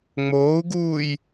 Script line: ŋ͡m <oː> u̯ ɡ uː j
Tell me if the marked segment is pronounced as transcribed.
yes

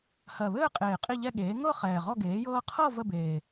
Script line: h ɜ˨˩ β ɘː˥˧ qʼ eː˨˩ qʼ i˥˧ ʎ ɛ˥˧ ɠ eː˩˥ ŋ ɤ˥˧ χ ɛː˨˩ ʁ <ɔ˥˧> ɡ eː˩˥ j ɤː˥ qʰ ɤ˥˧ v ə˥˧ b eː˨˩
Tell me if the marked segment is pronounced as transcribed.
yes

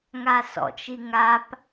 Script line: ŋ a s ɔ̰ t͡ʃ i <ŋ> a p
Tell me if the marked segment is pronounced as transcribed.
yes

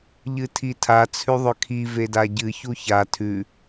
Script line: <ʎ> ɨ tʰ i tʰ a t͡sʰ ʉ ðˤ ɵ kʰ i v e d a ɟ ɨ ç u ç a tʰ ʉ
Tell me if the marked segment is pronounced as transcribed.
yes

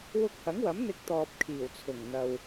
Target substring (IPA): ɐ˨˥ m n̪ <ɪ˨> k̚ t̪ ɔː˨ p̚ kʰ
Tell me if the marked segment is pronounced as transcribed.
no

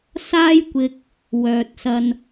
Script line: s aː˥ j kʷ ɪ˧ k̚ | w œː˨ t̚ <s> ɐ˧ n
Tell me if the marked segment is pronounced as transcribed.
yes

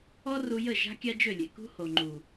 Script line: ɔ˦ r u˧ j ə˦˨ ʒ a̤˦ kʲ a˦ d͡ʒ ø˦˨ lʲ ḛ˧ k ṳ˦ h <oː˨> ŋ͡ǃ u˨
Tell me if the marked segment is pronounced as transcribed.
no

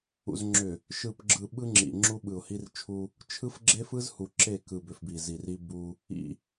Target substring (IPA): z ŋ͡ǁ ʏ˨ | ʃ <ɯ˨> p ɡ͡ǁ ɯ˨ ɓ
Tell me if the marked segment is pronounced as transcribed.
yes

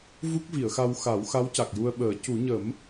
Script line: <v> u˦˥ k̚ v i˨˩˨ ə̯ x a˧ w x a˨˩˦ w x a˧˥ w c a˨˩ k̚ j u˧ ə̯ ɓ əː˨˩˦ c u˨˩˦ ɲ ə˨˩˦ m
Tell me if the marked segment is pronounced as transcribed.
yes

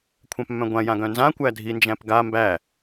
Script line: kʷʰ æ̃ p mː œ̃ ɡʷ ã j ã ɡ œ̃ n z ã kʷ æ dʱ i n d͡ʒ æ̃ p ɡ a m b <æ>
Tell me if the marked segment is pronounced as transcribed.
yes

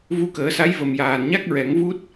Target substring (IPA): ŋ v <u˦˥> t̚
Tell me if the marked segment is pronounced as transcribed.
yes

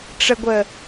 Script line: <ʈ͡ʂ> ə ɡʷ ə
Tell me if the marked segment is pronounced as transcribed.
yes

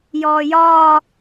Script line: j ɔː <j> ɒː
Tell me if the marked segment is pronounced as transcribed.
yes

